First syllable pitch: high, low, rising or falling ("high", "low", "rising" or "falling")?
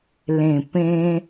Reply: low